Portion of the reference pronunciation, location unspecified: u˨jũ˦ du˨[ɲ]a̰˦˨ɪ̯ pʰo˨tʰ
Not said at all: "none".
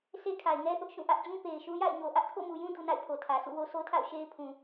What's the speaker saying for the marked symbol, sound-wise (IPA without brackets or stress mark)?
n